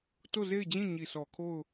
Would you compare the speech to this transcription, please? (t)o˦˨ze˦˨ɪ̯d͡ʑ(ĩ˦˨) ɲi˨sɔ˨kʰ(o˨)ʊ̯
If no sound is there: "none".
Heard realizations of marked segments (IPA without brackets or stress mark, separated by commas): t, ĩ˦˨, o˦˨